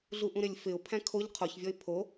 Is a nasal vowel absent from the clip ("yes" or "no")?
no